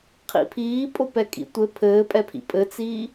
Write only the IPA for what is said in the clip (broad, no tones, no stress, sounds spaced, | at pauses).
qʰ ḭ pʰ iː pʼ o p ɛ kʼ ḭ tʷ ɘ pʰ ɘː pʼ ɛ pʰ ḭ pʼ ɘ t͡s iː